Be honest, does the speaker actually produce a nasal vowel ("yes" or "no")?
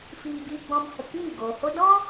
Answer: yes